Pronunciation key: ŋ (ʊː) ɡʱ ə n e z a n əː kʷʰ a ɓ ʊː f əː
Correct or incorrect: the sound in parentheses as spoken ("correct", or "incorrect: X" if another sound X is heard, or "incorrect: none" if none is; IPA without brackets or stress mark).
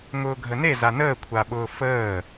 correct